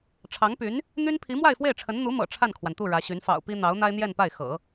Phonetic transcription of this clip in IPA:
ʈ͡ʂʰ ɑ˧˥ ŋ p y˧˥ n | n̪ y˥ n pʰ i˧˥ m w a˥˧ ɪ̯ f w e˥˩ ɪ̯ ʈ͡ʂʰ ə˧˥ n n̪ u˧˥ m ɤ̰˨˩ ʈ͡ʂʰ a˥˩ n kʰ w a˩ n t̪ u˥˩ ɻ ä˧˥ ɕ y˧˥ n f ɑ̰˨˩ ʊ̯ p i˥ n̪ ɑ˧˥ ʊ̯ n̪ a˥ ɪ̯ n̪ j ɛ˥˧ n p a˥˩ ɪ̯ x ɤ̰˨˩˦

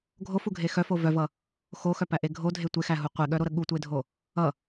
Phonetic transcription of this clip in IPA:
ɡʱ o f u ɡʱ e x œ f o v œ v ʌ | x o x œ p æ ʔ e ɡʱ o dʱ e tʷ e x æ ɦ u qʷ e ɠ œ ɾ o ɾ ə ɠ u tʷ e dʱ o | ʌ

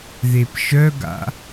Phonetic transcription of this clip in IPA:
ð e p ʃ œ ɡ a̰

